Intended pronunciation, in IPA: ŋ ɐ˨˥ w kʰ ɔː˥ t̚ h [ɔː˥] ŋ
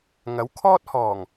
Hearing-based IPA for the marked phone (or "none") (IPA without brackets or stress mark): ɔː˨˩